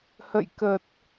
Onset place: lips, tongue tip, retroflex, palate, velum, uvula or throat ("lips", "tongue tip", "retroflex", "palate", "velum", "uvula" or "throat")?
throat